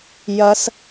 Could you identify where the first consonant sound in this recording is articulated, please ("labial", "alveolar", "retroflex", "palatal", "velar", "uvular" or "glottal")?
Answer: palatal